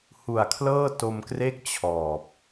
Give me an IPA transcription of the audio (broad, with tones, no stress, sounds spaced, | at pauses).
h u˨˩ a̯ kʰ l ɤː˥˩ t o˧ m k r e˥˩ k̚ t͡ɕʰ ɔː˨˩ p̚